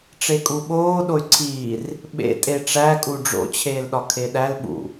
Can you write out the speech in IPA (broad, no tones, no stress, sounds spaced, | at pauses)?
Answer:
ʈ͡ʂ e kʼ u ɓ oː ɗ o y̯ ǀʰ iː r | ɓ ḛ tʼ e ʈ͡ʂ æ kʼ u ɖ͡ʐ o̰ t͡ɕʰ eː l ɗ ɒ kʰ e ɗ æ l ɓ ṵ